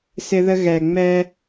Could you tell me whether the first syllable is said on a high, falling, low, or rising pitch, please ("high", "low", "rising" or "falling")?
high